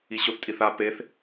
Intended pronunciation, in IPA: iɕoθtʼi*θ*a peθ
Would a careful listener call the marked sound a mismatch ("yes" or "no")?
no